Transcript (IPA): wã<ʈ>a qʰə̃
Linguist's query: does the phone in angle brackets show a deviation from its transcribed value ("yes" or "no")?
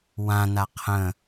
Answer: yes